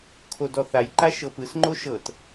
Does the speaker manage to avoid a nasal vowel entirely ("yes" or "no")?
yes